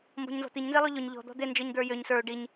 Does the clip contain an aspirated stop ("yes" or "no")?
no